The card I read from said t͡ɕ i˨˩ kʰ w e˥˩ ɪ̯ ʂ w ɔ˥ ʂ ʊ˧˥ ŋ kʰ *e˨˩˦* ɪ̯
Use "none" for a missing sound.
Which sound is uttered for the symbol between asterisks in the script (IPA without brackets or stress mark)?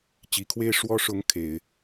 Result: e˨˩˦